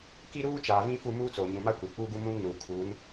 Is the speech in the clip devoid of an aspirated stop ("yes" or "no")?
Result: no